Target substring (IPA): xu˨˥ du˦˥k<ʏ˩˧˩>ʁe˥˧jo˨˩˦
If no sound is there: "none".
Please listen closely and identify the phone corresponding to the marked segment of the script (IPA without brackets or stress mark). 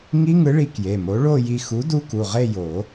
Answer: u˩˧˩